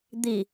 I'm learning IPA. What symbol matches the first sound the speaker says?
d̪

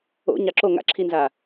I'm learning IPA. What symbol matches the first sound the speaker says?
o̰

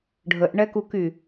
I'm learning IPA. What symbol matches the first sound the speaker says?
ɖʱ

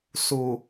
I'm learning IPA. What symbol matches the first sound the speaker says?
s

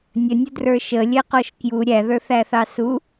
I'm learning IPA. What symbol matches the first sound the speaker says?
nʲ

